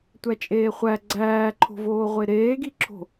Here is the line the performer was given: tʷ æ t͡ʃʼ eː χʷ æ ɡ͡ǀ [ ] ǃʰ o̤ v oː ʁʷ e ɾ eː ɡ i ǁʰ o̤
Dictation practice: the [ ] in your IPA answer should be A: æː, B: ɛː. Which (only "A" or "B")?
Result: A